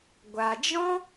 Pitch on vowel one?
low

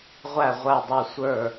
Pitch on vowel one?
falling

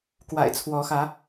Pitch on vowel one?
low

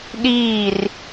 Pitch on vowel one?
falling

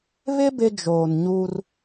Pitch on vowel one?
high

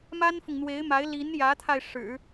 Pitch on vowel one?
high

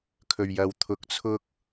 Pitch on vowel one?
low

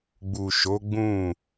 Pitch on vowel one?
low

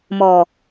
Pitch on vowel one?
low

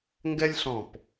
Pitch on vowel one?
high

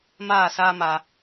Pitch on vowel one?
falling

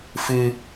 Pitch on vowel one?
low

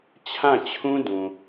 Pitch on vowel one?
falling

